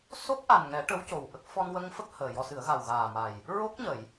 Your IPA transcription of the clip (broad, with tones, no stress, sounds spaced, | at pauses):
s o˦˥ k̚ ʔ a˨˩ n ŋ ɛ˨˩˦ ʈ ə˧˥ w c o˨˩ w ʔ ə˦˥ k̚ f ɔ˧ n w ə˧ ŋ f ə˦˥ k̚ h əː˨˩ j ɔ˧ s ɨ˨˩˦ ə̯ ɣ a˨˩ w ɣ aː˨˩ m a˨˩ j | ɹ o˦˥ k̚ ɲ ə˨˩˨ j